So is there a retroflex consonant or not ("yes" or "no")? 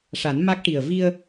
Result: yes